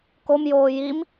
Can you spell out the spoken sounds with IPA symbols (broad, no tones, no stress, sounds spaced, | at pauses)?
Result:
k o m j oː j i m